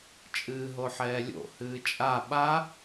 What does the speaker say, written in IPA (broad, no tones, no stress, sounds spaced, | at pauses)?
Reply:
t͡ʃʼ ɨː ɦ o ħ ɛː lʲ o̰ h ɨː t͡ʃʼ a ɓ a